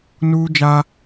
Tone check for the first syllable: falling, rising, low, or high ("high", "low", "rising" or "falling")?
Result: high